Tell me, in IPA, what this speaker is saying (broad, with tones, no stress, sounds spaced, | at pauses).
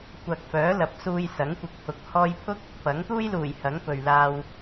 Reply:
kʷ ɐ˨ k̚ f œː˨˥ l ɐ˨ p̚ s uː˧ j s ɐ˨˥ ŋ kʷ ɪ˨ k̚ t̪ʰ ʊ˨ k̚ h ɔː˥ j pʰ ʊ˥ k̚ | p ɐ˨˥ ŋ t̪ uː˥ j l uː˨˩ j h ɐ˨˥ ŋ p ɵ˧ ɥ l aː˥ w